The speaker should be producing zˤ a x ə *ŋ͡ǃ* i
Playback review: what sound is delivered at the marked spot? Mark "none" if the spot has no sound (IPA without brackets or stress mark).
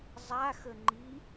ŋ͡ǃ